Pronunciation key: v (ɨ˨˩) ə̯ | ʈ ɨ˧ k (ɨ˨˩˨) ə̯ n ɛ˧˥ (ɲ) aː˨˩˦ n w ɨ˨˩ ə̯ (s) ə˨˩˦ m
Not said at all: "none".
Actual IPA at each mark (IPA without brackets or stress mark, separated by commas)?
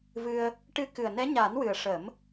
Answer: ɨ˧, ɨ˨˩, ɲ, ʂ